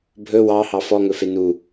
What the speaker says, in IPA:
bʱɵ wɑ hɑfɔ ŋɵfenu

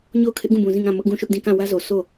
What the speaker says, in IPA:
ɲo˦˨ʊ̯ kʰɪ˦ʔɡũ˦˨bũ˨ zĩ˦˨ŋã˦˨ mʊ˦ʔɡũ˦˨ʃʊ˦ʔdĩ˦˨ kã˦˨wä˦zo˨ sʰo˦˨

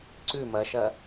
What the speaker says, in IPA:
ǀʉ mɐʃɐ

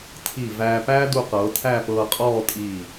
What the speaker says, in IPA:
tʰi˧˩ væː˧pæː˥ du˧qɤː˩˧ tʰæ˥˧pɤː˧qʼɔː˥˧tʼiː˧˩

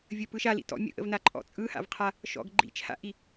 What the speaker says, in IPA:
vʲəpɯʃ alḭ tɔ̰ mʲə̰ʔə̰vnaǃʼɔ̰ t͡sʼɯha̰vqʰa | ʃɔ̰ɡə ɡ͡ǃḭt͡ʃʰa̰ʔi

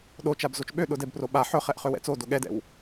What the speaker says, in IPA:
ɗot͡ʃab zot͡ʃɓøɗʊ dɛbpro ɓa ħɵχɛʔ χøwɛ̰t͡sodo ɠɛdɛ̰w

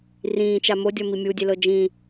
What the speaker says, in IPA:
rĩːt͡ʃa modʲɔmi mʲudʲelɤ d͡ʒĩ

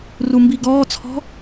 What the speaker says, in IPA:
rumbiɡɔːt͡sʰɔ̤

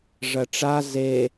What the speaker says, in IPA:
ʐɐʈ͡ʂa ze

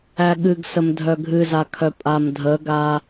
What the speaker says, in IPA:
æɠɨɡsəm dʱœɡʱɨzakʰœ pʼamdʱəɡa

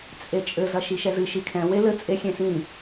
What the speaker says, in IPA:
t͡sʼet͡ʃʼɘ zɐʃiʃɛzɨ ʃikʰɛ̃ welɘ t͡sʼe xʲẽsĩ

